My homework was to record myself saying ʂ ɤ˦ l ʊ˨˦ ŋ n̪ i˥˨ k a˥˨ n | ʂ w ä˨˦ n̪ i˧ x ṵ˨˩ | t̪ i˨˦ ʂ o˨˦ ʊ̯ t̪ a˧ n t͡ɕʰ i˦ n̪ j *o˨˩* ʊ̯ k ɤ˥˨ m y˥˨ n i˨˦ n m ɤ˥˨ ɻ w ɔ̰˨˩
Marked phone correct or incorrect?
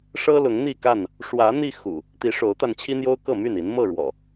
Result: incorrect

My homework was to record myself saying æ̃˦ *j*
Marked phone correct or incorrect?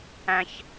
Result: incorrect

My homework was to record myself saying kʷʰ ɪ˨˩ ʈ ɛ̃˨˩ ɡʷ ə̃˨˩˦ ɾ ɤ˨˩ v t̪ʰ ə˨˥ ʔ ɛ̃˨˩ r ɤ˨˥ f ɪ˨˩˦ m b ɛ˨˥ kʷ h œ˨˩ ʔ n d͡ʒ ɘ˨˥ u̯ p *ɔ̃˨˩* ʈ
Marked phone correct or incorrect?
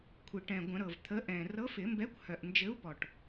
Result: incorrect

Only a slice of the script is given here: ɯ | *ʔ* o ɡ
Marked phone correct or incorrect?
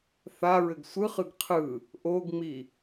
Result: correct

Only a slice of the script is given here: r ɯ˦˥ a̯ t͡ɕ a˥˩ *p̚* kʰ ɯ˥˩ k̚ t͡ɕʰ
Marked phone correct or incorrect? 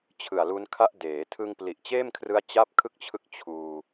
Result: correct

